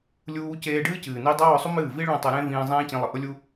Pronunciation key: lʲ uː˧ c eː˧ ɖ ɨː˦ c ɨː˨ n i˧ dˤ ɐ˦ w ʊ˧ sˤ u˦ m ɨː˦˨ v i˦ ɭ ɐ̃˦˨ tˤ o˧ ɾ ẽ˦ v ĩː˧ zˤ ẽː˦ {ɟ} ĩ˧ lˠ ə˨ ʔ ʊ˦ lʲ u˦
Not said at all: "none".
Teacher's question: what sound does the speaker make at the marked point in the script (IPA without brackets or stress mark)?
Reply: c